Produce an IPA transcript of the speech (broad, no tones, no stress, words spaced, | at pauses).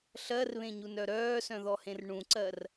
ɬɜrβẽɲunœ ɾœːsœ̃ðɔhẽr ɳũǀɜr